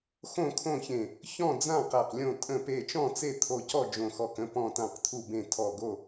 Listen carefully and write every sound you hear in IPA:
x õ˥˨ kʰ õ˥˨ ç ẽ˧˩ | ç ɔ̃˥˨ d͡z ã˥˨ q æ˧˩ q lʲ õ˥˨ tʼ ə̃˥˨ p e˥˨ t͡ʃ ɔ̃˥˨ t͡s e˥˨ t̪ʰ o˧˩ c ɔ˥˨ d͡ʒ õ˧˩ x ɔ˧˩ k ə̃˥˨ p ɔ̃˧˩ t ã˧˩ q t̪ʰ u˧˩ b ẽ˧˩ tʰ ɔ˧˩ ɡ o˥˨

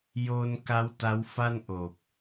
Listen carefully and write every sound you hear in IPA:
j oː˧ n k a˦˥ w t a˦˥ w f a˥˩ n ʔ oː˨˩ p̚

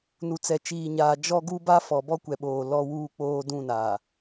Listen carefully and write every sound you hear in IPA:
n u˨ t͡s ɛ˨ t͡ʃ iː˨ ɲ aː˨ d͡ʒ ɔ˦ ɡ u˦ b a˦ f ɔ˨ b ɔ˦ kʷ ɛ˨ ɓ oː˨ l ɔ˦ w uː˦ k͡p oː˦ d ũ˦˨ n aː˨

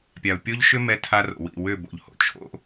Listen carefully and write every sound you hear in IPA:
pʲ a˨ ʊ̯ pʲ o˦ ʎ ʃ ʏ˦ m ɛ˦ tʰ a˦ r o̰˨ w ḭ˦˨ w ʏ˦˨ b o̰˨ ʎ h o̰˦ t͡ʃʰ o̰˦

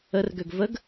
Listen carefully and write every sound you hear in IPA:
ə r ɡ ø ɡ v ə ɡ

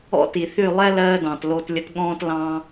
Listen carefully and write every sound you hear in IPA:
ɔ̰˦ t i˨ θ y˦˨ lˠ ɛ˦ l ɜː˧ d ɑ̃˨ t l o˧ t lʲ ə˧ t ɠ ɔ̃ː˦ t l ɑ̃˦

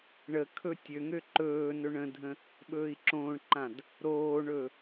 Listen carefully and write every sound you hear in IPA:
ɳ ə kʰ ɵ tʲ ø ŋ ø ǃ ɵː n ɵ ɳ ə̃ dʱ ə̃ | ɓ ɵː i̯ ǁ õː ɳ ǃ ã d | ɾ oː ɳ ɵ

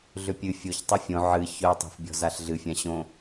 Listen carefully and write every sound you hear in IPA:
ɮ ʏ pʲ ɨ fʲ o ç tˤ ɨ fʲ õ ʕ ɨ ç œ tˤ o̤ f bʲ ɔ̤ z a ɬ ɮ ɨ fʲ ã ɕ õ

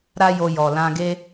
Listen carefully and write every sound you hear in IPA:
ɾ a˦ j o˧ j ɔ˨ l ã˧ ɡ e˦

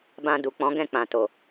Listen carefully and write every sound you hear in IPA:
b ã˧ d u˨ k͡p ɔ̃˨˦ ɡ ɛ̃˦˨ k͡p ã˨ t o˨

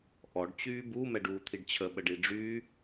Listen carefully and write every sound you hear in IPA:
ʔ ɔ ɖ t͡ɕ yː b u m ɛ ɖ uː t̪ʰ i ɖ t͡ɕʰ ə ɓ ə ɖ i ɖ͡ʐ yː

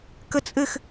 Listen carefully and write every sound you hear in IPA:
k ə t͡sʼ ɘ x

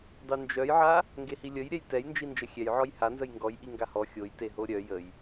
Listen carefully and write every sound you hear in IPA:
dˤ y n d͡ʒ œ j ʕ a | ŋ ɡ e h i lʲ ə j ɾʲ ɛ j t ɛ j n d͡ʒ i n d͡ʒ ə xʲ ɛ j ʕ ɔ j h a n z ə j ŋ ɡ ɔ j ʔ i ŋ ɡ a h ɔ xʲ o j t e ɦ o ɾʲ œ j ə j

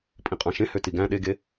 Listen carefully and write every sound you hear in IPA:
pʼ ĩ qʼ ɑ̃ ʃ ẽ h ø t i ɡ æ̃ ɗ e ɡ e

